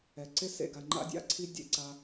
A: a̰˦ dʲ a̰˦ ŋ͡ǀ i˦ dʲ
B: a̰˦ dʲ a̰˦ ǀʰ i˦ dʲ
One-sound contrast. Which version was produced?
B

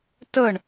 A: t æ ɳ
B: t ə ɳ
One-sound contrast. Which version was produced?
B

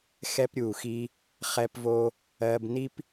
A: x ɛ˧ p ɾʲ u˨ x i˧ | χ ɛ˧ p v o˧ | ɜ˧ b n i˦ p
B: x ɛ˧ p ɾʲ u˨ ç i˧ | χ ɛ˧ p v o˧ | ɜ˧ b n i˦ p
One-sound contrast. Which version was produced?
A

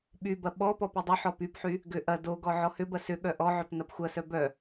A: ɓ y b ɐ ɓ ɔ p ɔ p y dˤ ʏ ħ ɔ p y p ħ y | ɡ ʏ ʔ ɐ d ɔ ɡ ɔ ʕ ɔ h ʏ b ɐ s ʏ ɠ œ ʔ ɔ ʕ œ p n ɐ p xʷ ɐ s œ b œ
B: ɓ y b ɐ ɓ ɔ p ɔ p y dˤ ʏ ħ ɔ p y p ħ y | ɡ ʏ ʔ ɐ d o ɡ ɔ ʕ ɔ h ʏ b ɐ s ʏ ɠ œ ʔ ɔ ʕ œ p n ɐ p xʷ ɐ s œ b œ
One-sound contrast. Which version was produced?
B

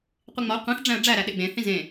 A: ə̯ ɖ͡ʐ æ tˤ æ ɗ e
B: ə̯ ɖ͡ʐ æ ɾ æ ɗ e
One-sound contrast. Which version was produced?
B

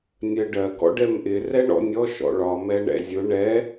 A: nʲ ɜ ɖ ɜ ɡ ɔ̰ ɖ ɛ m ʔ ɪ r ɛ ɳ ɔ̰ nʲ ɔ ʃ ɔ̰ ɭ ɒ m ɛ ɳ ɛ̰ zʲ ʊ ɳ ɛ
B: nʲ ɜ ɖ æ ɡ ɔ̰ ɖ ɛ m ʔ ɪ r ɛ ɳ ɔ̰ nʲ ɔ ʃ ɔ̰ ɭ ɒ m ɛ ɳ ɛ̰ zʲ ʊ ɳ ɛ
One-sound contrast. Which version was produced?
A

